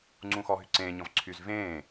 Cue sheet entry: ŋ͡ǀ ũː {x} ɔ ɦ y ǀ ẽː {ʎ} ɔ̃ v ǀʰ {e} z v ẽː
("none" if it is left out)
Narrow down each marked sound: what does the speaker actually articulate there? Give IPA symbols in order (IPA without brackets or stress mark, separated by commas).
x, ɲ, y